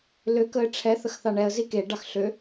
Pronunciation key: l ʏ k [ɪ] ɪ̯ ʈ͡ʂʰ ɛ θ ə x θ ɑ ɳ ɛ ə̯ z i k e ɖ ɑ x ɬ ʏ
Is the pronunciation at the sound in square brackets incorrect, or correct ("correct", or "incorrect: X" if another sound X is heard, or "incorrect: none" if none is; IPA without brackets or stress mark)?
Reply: incorrect: ə